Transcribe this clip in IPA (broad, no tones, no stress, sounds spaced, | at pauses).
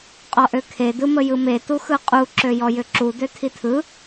qʼ ɔ ʔ ø kʰ e d ɯ m ə j ɯ m e t u x ɯ qʼ u ǁ ø j ɔ j ʏ ǁ u d ø tʰ i tʰ ɯ